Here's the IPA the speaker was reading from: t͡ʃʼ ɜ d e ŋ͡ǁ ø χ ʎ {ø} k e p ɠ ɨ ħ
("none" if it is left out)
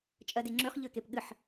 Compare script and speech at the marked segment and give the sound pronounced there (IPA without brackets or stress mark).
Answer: ø